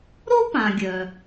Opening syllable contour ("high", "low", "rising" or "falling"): high